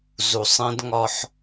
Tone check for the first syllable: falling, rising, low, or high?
low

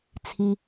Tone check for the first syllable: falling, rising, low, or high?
low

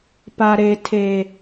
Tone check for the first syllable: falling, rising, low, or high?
low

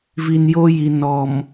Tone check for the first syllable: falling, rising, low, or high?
low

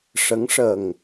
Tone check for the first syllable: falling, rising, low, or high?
rising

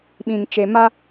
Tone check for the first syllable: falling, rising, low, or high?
low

